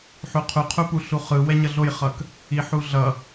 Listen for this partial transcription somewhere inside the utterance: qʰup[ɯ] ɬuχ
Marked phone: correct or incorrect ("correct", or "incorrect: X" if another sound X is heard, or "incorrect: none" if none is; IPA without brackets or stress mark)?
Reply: incorrect: u